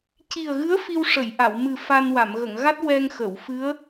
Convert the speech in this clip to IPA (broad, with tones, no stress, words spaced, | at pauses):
ci˨˩ə̯ɣɨ˧˥ə̯ fi˧wʂə˨˩˨jʔa˨˩˨w mɨ˨˩ fa˧n wa˨˩˨mɣə˨˩˨ŋ ɣa˦˥t̚ wɛ˧ŋxə˨˩˨wfɨ˧˥ə̯